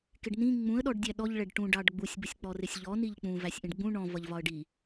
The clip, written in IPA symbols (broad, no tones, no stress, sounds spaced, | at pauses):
k ɪ ɖ n ĩ ŋ͡m ũ ə̯ ɗ ɔ ɖ dʲ æ ɗ ɔ ʎ ɭ ɛ ɖ ʈ ũ ɖ ɑ ɖ ɡ͡b u sʲ b ə sʲ k͡p ɔ r ɪ sʲ ʎ ɔ n i ʎ k͡p ũ v æ sʲ ʔ ĩ ɖ ɡ͡b ũ ɳ ɔ̃ v ʌ ʎ v ɒ ə̯ ɖ i